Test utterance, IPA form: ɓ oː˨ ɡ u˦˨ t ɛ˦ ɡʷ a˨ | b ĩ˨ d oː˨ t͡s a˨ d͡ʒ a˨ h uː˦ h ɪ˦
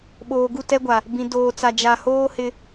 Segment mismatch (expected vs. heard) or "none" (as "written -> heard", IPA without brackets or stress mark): uː˦ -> oː˦